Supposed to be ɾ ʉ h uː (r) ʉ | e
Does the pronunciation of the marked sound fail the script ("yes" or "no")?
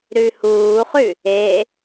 yes